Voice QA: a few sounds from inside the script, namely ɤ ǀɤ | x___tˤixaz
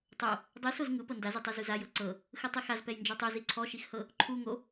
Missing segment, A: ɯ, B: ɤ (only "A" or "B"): A